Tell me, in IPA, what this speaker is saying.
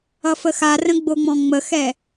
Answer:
ʌfəxarə̃ ɡ͡boŋ͡mɔ̃ŋ͡məxɛ

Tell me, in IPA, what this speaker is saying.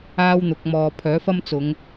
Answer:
aː˥wn̪ʊ˨˥k̚mɔː˧ pʰœː˨˥fɐ˥mt͡sʊ˨˧ŋ

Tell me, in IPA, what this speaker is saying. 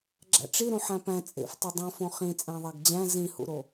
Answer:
ɡ͡ǁæ̰ʈ͡ʂiɾũ ħæ̃pæ̃ t͡sʼḛf tˤedˤõfõ χĩ t͡sʼæ̃ðˤæɡd͡ʑæ̃ zĩhṵɾo

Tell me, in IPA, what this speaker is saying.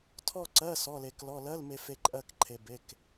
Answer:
tʰɔ˥˧ǀɜ˧˥˧ sɔ˧˥˧le˧klɔ˧˥˧ lɜ˧˥˧lme˧fe˧ ǃʼɜ˥˧kǃʰe˧ be˧˥˧k

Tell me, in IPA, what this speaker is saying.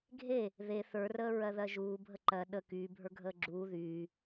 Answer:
ɡʱe | ðe θə˞rəː ɹɜðɜʒuː bʱəǃɜ ɗə kyːbʱə˞ ɡʱəːɡ͡ǁuː ðyː

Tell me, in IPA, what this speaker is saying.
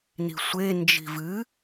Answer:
ni̤sʷe nd͡ʒi̤vɨ

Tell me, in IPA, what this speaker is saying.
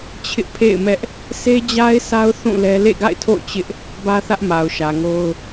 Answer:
t͡ɕʰɪ˦ʔpʰḛ˦˨ɪ̯mɛ˦ʔ | se˦d͡ʑa˦ɪ̯sa˦ʊ̯ θũ˦˨lɛ˦ lḛ˦˨ɡa̰˦˨ɪ̯tʰo̰˦˨ʊ̯ t͡ɕɪ˦ʔ | bä˦θä˦ʔ ma˨ʊ̯ʃä˨ŋo˦ʊ̯

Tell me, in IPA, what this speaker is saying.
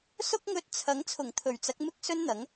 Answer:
sʊ˥k̚ŋɵ˧t̚t͡sʰɐ˨˥ŋ t͡sʰʊ˨˩ŋt̪ʰɵ˨˩ɥt͡sɐ˨˥k̚ mɪ˥k̚ sɵ˥nn̪ɐ˨˥ŋ

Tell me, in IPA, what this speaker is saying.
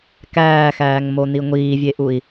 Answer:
kæːxæːŋmoni ŋʷiːvʲeʔui̯

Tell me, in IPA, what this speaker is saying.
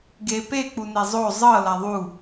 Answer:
ɡe pe k͡punezˤo zˤɤ laðˤu

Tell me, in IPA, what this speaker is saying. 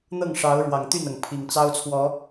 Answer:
n̪ɤ˥˨ŋʂɑ˨˦ʊ̯ ɻwɑ˨˩ŋt̪y˥˨nɤ˩ŋ pʰi˨˩ŋt͡sɑ˦ʊ̯t͡sʰwɔ˨˦

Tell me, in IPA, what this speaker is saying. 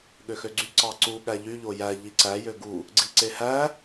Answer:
ɠøxøɡ͡ǀy ǀɑǀu ɠæʎy ʎojæ ʎiǀæ jøɡu | ɡ͡ǀiǀehæ

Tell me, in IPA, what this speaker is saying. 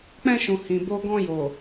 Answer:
k͡pɛ̃˧ʃũ˨ hĩ˨ bo˧ɡɔ̃˧jo˨

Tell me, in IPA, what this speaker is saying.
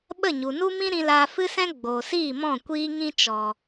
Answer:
ɓə˦˨ɲu˨nu˦mĩ˦ ɾĩ˧laː˧fɨ˦sɛ̃˦ ɡ͡boː˨siː˦˨mɔ̃˦˨ kʷiː˦ŋĩ˦t͡ʃɔ˨

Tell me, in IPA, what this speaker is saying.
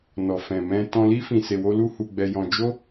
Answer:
nɔ˨fɛ̃˨mɛ̃˧ tɔ̃˧li˦ fĩ˧se˧wo˦ lu˦hu˧ɡ͡bɛ˧jɔ̃˧ d͡ʒo˦

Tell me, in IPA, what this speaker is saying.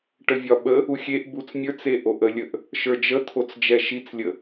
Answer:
ʈəvʲɒɓə | uxʲeʔ but͡smʲə˞t͡se ʔoʔəlʲəʔ | ʃə˞d͡ʒət̪ʰot͡s d͡ʒɛʃit͡slʲə

